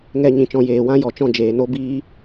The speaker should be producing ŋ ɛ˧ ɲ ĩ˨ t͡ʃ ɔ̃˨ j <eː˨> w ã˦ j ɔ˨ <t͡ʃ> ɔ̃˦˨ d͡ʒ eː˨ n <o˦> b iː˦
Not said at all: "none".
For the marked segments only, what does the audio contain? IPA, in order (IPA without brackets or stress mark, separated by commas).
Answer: eː˨, t͡ʃ, o˦